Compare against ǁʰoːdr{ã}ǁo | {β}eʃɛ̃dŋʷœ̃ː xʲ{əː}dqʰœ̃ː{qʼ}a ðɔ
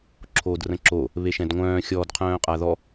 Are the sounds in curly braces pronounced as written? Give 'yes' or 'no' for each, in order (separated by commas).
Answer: no, yes, no, yes